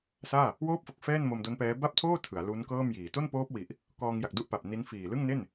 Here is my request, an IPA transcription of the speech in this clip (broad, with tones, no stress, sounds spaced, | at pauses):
s aː˥˩ | w oː˥˩ p̚ f o˨˩ k̚ f ɛː˥˩ n m o˧ m d o˦˥ n p ɛː˦˥ b a˥˩ p̚ tʰ oː˥˩ tʰ ɯ˩˦ a̯ l u˦˥ n k ɤː˥˩ m j iː˨˩ t o˥˩ n p oː˦˥ p̚ w i˨˩ ʔ | k ɔː˧ ŋ j a˨˩ k̚ d u˦˥ ʔ p a˨˩ p̚ n i˦˥ n f iː˨˩ l ɯ˥˩ ŋ n e˥˩ n